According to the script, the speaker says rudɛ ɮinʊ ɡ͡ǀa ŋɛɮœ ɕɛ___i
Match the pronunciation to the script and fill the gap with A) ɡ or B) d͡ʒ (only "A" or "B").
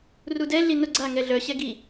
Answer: A